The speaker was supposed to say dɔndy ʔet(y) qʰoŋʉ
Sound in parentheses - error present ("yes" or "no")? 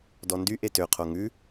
yes